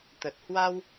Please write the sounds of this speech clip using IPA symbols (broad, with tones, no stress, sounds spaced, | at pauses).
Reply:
t̪ ə˨˩ t̚ h w a˧ w